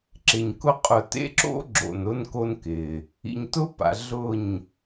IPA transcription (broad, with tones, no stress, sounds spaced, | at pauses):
ǁ ɪ˨ ɲ k ʊ˦ qʼ ʊ˨ t ḛ˦ ǁ o̰˦ ɡ͡ǁ o̰˨ n ʊ˦ n k o˦ n k ɪ˨ | ḭ˨ ɲ t ʊ˦ p a̰˨ ɮ ʊ˦˨ ɲ